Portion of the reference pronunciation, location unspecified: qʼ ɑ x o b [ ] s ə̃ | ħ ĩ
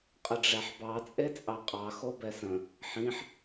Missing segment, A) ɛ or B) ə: A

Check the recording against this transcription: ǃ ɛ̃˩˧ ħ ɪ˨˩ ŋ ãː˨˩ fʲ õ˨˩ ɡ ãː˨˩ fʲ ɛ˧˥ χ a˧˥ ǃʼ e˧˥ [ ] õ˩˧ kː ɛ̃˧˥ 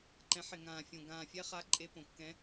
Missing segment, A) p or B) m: A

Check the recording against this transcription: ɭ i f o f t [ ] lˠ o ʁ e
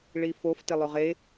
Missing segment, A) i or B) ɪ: B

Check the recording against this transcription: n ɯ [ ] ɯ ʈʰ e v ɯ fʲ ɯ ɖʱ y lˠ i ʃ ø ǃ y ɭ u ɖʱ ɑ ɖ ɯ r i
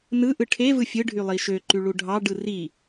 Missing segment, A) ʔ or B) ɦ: A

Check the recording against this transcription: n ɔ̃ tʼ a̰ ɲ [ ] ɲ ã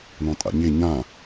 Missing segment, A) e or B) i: A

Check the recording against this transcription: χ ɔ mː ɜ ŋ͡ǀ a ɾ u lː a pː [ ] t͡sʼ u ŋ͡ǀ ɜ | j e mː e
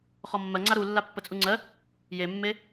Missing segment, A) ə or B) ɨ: A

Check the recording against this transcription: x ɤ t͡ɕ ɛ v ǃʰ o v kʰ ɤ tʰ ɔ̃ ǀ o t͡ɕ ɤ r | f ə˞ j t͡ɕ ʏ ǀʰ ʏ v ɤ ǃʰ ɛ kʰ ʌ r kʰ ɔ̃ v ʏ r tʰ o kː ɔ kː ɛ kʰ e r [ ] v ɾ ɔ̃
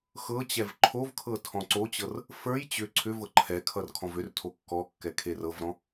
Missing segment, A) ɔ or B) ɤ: B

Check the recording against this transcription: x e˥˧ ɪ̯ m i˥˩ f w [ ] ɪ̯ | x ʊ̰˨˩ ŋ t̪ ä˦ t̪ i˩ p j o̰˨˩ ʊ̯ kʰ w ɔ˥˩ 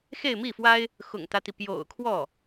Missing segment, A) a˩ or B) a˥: B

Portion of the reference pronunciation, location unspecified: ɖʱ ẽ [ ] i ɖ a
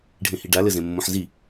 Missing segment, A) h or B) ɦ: A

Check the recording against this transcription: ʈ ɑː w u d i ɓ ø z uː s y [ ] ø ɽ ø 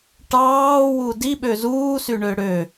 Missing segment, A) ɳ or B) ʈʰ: A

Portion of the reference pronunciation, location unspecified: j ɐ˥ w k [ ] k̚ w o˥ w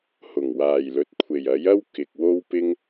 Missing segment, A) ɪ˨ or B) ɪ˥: A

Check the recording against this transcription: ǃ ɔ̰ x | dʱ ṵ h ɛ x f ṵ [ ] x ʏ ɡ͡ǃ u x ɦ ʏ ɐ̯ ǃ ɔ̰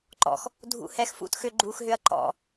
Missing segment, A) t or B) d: A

